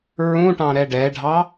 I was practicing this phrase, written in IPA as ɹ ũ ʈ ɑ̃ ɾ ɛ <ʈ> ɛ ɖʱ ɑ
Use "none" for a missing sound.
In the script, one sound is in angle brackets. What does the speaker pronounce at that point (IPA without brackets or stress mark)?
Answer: ɖ